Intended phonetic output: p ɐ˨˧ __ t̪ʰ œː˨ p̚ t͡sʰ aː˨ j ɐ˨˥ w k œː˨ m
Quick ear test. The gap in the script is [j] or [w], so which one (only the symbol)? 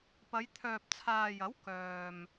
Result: j